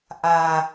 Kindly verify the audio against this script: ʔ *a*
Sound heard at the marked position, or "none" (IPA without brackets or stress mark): a